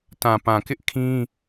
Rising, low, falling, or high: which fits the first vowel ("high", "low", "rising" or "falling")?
low